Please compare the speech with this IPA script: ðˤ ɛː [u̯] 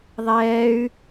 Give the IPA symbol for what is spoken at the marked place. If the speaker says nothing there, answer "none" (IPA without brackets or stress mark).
y̯